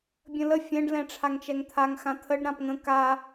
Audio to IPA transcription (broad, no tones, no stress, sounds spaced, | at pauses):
bʲ ə̃ l ə fʲ ɛ̃ ɖ l ɛ̃ ʈ͡ʂʰ a ŋ t͡ʃ ɛ ŋ t̪ʰ a ŋ x ã t̪ʰ ə ɖ ɾ ã p ŋ ə̃ k a